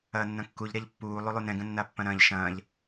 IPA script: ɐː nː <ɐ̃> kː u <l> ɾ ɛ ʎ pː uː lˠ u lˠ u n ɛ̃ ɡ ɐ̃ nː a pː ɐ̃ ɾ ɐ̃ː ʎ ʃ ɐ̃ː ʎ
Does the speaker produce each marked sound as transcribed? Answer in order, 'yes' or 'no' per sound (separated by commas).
yes, no